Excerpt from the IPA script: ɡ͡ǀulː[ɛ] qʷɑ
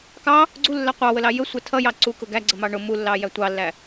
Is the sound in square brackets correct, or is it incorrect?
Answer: incorrect